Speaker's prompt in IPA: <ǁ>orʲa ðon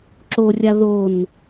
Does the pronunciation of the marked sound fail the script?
no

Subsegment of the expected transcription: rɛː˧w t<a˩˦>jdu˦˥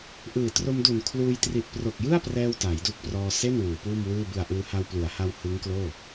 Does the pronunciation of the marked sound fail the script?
no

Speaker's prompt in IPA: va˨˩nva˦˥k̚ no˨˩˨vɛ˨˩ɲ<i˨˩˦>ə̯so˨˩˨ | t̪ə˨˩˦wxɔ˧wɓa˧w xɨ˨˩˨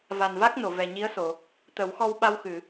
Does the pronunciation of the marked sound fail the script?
yes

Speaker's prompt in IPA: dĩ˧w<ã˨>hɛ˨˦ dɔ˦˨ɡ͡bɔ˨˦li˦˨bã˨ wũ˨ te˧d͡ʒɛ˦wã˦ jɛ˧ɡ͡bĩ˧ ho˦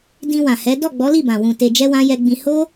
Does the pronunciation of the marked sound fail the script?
no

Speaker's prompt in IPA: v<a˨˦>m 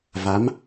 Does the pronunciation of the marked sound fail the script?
no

